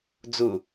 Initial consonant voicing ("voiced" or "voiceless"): voiced